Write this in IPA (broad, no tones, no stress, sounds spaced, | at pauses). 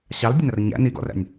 ɕ ɑ l dʲ ə n ɐ r ɲ æ̰ n i ɡ ɔ̰ r æ̰ nʲ